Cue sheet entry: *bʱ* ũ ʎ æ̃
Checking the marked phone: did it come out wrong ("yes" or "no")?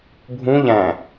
no